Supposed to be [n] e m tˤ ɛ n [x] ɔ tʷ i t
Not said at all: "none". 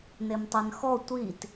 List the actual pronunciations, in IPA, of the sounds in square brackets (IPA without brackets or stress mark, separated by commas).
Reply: n, x